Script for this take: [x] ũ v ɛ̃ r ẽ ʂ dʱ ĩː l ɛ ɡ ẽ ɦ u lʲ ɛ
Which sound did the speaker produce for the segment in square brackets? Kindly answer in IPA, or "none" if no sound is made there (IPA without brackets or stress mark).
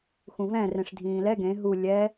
x